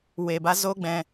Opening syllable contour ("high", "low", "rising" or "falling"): low